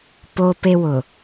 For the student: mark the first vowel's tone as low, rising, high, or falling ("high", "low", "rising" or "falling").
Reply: high